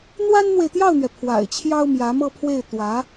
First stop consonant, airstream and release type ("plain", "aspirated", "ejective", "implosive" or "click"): plain